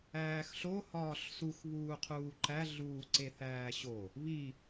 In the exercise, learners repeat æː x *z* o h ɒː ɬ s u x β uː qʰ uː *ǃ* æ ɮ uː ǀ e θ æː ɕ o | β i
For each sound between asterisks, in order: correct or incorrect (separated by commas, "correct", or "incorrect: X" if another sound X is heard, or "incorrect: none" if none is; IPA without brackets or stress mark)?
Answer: incorrect: ɬ, correct